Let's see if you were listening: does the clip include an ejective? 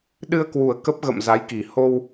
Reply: no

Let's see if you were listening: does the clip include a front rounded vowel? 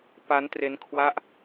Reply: no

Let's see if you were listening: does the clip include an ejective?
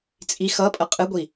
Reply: yes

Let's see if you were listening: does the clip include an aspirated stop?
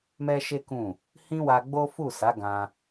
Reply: no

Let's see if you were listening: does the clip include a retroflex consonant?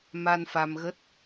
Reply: no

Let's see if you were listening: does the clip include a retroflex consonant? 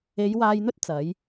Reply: no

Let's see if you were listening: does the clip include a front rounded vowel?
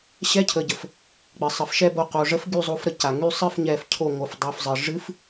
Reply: yes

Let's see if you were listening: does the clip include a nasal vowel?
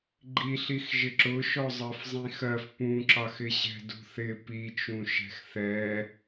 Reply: yes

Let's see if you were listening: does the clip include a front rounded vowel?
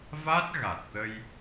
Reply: no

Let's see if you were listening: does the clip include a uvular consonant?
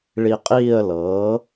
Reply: yes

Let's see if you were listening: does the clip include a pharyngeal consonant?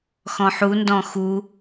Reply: yes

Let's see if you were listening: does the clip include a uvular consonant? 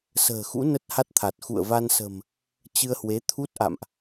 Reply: no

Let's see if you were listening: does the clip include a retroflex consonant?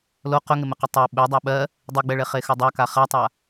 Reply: yes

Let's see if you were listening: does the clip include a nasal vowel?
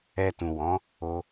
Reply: yes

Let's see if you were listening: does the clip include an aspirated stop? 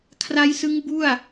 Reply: yes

